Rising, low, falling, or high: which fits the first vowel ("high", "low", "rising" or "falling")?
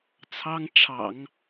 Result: high